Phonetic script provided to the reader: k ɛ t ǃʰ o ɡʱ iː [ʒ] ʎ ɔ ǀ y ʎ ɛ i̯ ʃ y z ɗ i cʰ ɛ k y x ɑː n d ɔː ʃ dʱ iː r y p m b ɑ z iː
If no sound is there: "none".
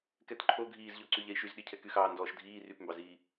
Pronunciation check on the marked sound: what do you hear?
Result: z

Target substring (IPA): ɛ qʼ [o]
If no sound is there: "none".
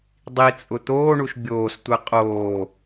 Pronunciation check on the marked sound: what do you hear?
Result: oː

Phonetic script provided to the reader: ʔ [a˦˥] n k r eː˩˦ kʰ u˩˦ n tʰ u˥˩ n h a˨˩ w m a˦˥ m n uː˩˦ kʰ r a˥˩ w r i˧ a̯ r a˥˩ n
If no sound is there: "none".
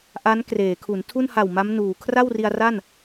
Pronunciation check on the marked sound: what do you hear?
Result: a˦˥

